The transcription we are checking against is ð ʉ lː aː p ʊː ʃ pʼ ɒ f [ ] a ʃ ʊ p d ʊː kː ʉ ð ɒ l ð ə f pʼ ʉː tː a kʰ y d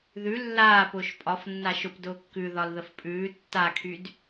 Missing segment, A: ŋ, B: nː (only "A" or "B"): B